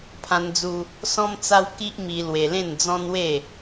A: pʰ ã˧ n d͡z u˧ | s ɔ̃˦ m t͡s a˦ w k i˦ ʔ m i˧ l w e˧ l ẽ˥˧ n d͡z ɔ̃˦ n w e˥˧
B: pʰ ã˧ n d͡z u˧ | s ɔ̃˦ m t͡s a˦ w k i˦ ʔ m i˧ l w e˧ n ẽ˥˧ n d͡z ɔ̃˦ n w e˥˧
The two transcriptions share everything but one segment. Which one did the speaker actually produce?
A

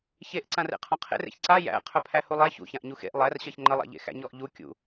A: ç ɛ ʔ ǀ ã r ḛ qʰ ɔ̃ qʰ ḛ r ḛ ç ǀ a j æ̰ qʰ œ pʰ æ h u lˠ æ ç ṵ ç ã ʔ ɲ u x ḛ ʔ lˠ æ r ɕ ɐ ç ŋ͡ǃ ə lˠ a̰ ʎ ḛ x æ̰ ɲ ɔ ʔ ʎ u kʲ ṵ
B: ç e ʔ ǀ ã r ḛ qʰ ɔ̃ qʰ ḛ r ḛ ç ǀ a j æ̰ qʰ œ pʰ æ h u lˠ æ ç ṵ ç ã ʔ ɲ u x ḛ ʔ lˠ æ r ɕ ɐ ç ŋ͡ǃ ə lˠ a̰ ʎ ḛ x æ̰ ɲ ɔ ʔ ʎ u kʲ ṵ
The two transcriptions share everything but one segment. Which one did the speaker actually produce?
B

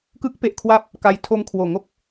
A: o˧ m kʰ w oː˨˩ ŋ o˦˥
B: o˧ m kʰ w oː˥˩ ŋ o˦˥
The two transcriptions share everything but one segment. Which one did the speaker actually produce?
A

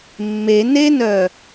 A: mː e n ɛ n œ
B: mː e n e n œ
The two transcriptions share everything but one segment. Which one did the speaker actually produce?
B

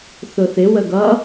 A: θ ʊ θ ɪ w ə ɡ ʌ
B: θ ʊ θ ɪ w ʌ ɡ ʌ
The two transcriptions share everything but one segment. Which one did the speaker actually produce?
A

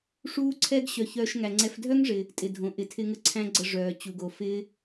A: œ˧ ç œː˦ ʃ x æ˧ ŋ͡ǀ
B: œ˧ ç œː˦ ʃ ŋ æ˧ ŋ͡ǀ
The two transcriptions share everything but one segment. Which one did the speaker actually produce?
B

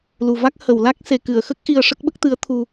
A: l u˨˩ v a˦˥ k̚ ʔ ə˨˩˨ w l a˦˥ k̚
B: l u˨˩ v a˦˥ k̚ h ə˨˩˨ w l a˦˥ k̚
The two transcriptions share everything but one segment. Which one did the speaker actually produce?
B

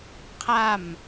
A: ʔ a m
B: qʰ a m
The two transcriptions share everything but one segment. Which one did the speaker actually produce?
B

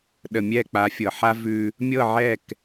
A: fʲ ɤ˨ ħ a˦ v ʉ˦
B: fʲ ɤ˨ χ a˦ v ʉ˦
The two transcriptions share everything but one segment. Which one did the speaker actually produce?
A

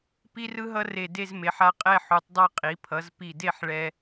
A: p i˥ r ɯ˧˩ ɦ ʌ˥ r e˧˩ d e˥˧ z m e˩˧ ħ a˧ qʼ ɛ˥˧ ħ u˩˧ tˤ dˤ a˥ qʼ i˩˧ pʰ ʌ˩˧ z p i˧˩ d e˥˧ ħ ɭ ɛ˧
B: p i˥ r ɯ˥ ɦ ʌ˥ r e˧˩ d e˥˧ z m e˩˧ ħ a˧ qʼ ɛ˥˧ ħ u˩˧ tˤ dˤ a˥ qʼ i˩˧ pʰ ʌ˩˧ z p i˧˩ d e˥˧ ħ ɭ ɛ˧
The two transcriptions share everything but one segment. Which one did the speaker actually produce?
B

